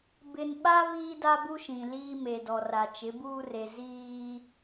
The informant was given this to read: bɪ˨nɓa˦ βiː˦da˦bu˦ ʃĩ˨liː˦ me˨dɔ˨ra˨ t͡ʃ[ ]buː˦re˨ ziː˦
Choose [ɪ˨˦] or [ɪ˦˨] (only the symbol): ɪ˨˦